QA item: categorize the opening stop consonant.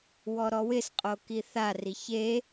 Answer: ejective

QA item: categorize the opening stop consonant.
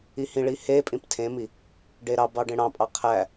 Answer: ejective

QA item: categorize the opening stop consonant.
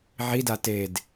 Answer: plain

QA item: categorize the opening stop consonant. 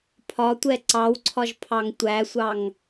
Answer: aspirated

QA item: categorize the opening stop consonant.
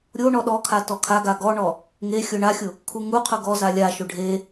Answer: implosive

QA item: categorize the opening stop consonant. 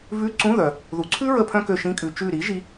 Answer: click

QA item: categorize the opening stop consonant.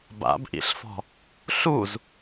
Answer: plain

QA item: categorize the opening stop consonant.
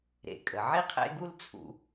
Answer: ejective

